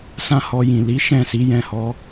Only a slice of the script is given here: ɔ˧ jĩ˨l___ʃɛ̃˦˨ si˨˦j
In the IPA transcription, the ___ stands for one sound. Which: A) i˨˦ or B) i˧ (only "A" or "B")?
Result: A